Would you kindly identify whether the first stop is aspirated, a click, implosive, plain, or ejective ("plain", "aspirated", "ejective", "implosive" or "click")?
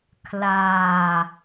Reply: aspirated